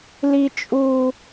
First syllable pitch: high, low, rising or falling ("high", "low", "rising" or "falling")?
low